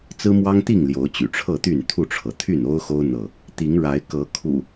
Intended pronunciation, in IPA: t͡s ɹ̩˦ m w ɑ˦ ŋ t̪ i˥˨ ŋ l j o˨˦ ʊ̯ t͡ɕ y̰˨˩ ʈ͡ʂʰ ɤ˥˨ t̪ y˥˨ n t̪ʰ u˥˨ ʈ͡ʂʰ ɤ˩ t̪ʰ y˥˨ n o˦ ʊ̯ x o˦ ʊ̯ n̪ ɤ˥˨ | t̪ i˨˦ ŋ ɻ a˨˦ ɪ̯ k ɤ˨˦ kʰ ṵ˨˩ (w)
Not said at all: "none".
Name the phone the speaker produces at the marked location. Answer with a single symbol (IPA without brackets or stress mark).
none